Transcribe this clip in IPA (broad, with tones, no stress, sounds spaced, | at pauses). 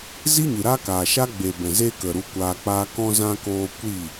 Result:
z i˦ ɲ ɨ˨ ɾ a˦ k aː˨ ʃ a˦ ɡ͡b e˨ b ɛ̃˨ z eː˦ k ə˨ ɾ u˧ kʷ aː˧ k͡p aː˦ k ɔ̃˧ z ã˧ k oː˧ kʷ i˦˨